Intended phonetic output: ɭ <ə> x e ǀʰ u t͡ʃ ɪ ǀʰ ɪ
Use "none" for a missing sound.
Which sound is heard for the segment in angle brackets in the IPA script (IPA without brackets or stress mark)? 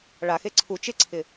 a